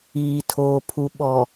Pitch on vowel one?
low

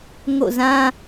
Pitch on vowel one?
falling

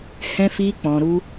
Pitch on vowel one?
high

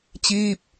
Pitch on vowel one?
falling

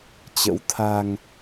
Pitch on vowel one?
rising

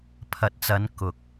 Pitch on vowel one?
rising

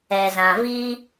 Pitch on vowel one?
low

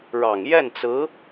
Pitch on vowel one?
low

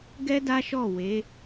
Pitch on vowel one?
high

